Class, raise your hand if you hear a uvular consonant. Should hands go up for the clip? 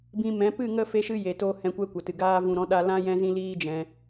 no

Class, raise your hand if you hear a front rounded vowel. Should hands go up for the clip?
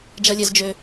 yes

